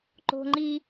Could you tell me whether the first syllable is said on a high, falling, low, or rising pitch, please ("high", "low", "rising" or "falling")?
high